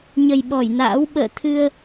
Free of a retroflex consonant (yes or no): yes